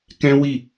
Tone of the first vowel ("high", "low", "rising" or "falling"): high